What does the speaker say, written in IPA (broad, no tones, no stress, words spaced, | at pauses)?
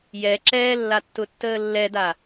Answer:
jɛ ǁɛːlːatːʊtːəː lːɛda